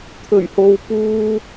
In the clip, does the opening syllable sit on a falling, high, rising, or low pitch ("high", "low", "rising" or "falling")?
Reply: low